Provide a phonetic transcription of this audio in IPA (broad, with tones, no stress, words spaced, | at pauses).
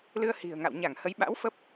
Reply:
lɨ˧ə̯hi̤˨˩ə̯ŋa̰˧˨w ɲa˧˩ŋhə˨˦j ɓa̰˧˥w fə˦˥p̚